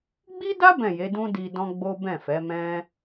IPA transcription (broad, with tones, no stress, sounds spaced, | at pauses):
ɡ͡b i˦ d a˦ b ɛ̃˦˨ j e˨˦ d ũ˦ d i˧ d ɔ̃˦ ɡ͡b o˦ b ɛ̃˦˨ f ɛ˨˦ m ɛ̃˦